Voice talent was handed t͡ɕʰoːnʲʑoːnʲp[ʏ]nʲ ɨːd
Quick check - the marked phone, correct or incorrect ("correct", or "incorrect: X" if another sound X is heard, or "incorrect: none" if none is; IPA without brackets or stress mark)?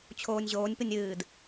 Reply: incorrect: ɨ